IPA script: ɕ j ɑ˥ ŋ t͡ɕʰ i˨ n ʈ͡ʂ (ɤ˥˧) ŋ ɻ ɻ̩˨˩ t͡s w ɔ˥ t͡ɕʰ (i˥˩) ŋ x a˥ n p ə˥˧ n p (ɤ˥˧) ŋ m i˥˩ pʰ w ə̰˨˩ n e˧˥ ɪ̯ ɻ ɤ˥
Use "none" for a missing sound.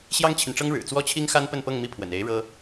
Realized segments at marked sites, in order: ɤ˥, i˥, ɤ˥˧

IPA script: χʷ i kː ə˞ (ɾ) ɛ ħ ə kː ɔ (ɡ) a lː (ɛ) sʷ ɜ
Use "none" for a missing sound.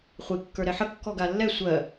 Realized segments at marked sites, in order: ɾ, ɡ, ɛ

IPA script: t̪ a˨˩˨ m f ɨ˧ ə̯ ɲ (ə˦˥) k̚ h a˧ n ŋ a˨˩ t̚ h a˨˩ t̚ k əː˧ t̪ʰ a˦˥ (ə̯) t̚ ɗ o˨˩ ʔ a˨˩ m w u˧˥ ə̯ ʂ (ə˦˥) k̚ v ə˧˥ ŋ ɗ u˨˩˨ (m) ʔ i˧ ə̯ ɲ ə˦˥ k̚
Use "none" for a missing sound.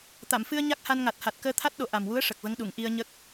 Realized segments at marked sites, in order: a˦˥, none, ə˨˩, ŋ

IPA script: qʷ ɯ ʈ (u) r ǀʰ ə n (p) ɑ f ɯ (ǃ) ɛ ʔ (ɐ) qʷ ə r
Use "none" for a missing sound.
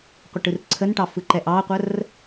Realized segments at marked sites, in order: ɯ, ʈ, ǃ, ɑ

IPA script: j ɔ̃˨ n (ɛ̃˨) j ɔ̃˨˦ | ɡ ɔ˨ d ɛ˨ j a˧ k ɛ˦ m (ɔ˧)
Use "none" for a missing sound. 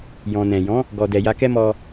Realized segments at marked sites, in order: ɛ̃˨, ɔ˧

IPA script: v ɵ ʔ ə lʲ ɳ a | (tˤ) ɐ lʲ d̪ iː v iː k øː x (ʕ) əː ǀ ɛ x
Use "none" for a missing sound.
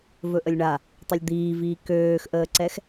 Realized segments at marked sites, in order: tˤ, ʔ

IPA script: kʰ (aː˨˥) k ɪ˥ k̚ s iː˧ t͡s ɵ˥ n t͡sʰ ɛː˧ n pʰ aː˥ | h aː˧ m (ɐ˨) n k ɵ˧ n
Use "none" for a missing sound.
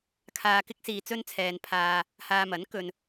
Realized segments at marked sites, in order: aː˧, ɐ˨˥

